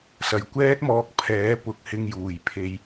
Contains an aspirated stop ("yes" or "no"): yes